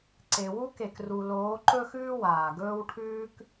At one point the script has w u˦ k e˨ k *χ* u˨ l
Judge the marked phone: incorrect: r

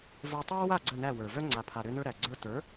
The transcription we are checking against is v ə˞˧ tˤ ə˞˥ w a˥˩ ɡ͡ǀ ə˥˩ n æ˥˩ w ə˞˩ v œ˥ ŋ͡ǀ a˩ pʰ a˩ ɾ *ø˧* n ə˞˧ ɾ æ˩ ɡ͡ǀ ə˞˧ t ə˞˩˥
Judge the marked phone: correct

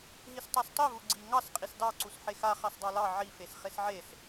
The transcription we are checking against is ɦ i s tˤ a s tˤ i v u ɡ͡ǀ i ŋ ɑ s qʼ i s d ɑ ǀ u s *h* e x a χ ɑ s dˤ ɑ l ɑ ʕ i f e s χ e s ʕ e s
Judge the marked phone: incorrect: ħ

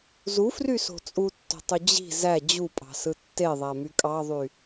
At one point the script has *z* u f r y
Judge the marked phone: correct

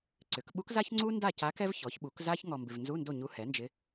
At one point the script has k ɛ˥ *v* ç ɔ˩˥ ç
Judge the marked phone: correct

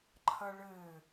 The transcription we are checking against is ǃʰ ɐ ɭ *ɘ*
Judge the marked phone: correct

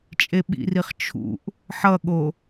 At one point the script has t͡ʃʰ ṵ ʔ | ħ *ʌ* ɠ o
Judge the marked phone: correct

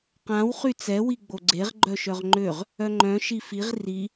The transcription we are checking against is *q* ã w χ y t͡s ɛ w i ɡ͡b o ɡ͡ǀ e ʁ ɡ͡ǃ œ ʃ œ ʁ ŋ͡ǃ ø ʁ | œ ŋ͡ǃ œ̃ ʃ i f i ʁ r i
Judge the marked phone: correct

